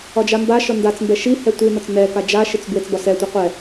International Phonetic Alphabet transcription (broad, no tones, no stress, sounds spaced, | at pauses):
ɒ d͡ʒ a m b a ʃ ɒ n d a t͡s m b ɛ ʃ i h ɛ tʷ i n ɒ t͡s n ɛ k a d͡ʒ a ʃ i t͡s b w e t͡s b ɒ s ɛ tʷ ɛ qʷ ɛ